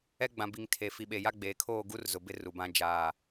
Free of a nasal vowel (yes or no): no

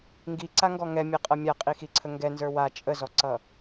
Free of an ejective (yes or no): no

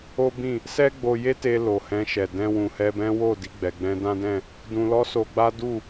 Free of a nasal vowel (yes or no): no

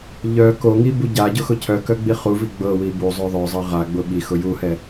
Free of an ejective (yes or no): yes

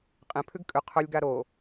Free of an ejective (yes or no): no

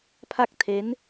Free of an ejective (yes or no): yes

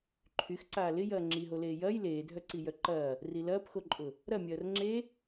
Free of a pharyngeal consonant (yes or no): yes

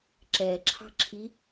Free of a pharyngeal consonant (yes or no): yes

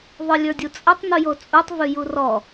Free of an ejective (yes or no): no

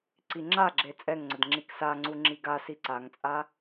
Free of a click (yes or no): no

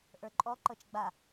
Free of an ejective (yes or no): no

